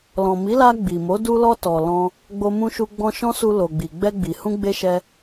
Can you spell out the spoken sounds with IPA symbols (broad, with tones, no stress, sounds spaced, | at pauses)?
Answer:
l ɔ̃˨ m i˨˦ l a˧ ɡ͡b i˨ m o˨˦ d u˧ l ɔ˧ t ɔ˨ l ɔ̃˧ | ɡ͡b o˧ m ũ˧ ʃ u˧ ɡ͡b ɔ̃˧ ʃ ɔ̃˦ s u˧ l o˨ ɡ͡b i˨ ɡ͡b ɛ˧ ɡ͡b i˨ h ũ˧ ɡ͡b e˧ ʃ ɛ˧